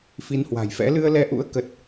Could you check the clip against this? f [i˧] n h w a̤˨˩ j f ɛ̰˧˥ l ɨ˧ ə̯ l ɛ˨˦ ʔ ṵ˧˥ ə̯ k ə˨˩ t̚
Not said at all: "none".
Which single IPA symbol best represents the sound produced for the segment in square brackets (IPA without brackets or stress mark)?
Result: i˨˦